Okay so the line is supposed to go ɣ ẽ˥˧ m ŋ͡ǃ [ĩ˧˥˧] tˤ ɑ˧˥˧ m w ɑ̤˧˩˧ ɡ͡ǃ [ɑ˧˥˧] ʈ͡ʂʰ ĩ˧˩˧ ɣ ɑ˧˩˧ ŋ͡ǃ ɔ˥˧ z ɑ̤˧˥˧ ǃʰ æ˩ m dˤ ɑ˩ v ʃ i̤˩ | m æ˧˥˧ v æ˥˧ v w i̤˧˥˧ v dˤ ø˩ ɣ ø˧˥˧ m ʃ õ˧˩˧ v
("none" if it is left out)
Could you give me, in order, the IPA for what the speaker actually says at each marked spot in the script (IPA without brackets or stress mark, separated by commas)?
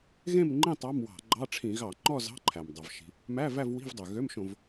ĩ˥˧, ɑ˧˥˧